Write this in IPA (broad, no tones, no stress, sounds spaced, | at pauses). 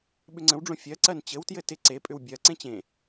ɓ ʏ ŋ͡ǀ ə̃ w ɖ͡ʐ õ fʲ ɜ ǀ ɜ n t͡ɕ ɘ w t j ɘ t ɪ ǀ e pʼ ʏ w bʲ ɜ ǀ ẽ t͡ɕ ẽ